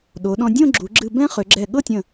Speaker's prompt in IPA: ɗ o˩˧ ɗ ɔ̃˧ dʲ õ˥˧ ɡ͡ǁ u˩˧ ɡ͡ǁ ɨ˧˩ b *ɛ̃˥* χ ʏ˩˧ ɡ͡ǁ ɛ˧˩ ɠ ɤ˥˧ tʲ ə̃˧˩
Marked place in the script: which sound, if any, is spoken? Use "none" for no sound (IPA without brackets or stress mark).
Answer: ɛ̃˥